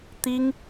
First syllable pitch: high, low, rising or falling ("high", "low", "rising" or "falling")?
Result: high